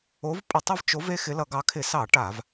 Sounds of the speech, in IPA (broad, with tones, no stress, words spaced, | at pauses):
o˨˦v pʼə˧˩˧tˤʌ˦vt͡ʃo˨˦v e˦xɪ˨˦lʌ˧˩˧ɡɑ˨˦ kʰɪ˧˩˧sɑ˧˩˧ ʈa˧˩˧v